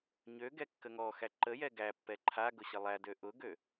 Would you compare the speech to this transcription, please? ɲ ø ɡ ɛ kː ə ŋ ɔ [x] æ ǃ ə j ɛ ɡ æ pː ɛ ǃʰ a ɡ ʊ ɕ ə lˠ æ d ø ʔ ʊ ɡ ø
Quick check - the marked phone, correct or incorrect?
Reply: correct